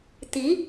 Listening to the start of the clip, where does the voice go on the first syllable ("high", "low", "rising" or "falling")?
rising